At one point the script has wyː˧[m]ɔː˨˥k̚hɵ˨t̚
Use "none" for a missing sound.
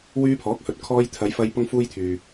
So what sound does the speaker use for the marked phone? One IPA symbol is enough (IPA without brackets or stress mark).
pʰ